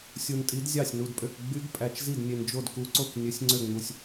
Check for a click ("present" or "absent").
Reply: present